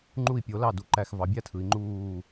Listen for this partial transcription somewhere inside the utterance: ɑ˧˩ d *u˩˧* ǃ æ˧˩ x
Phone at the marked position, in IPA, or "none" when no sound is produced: u˩˧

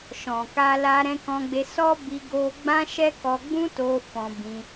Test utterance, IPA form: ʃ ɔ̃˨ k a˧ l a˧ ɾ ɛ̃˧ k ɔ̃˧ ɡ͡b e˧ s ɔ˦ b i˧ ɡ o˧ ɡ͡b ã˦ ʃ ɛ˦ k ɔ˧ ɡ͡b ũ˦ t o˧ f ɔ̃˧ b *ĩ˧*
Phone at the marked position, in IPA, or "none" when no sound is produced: ĩ˧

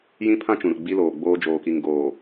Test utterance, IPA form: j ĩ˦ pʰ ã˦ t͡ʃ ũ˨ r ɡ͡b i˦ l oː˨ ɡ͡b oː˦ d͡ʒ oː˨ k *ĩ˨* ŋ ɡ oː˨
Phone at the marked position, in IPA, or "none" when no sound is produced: i˨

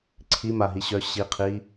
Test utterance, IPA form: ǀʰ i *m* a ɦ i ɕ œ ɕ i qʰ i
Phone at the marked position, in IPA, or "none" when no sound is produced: m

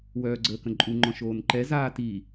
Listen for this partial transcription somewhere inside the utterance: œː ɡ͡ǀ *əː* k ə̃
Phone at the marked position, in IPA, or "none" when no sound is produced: əː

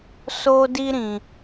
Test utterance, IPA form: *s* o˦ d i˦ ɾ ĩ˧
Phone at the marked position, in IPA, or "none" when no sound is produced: s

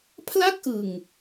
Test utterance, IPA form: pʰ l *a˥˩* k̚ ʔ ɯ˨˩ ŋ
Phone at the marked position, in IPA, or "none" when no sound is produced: a˥˩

